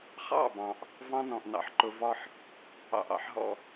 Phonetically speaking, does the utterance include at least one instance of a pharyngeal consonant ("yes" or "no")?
yes